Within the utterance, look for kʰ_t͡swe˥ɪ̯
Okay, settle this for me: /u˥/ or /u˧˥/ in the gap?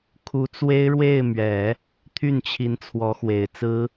u˧˥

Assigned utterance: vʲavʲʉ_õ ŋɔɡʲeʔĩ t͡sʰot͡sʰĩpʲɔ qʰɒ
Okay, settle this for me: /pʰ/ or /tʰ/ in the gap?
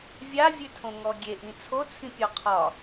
tʰ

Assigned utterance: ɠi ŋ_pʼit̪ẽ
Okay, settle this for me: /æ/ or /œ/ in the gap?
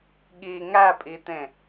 æ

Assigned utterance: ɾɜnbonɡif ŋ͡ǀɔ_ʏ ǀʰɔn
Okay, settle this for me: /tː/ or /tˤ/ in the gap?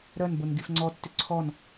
tː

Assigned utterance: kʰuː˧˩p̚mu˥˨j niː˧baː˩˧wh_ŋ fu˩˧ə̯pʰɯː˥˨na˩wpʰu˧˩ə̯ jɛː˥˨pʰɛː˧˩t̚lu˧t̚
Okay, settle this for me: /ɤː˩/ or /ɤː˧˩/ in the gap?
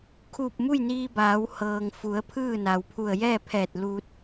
ɤː˩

